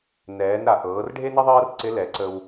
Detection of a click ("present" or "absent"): present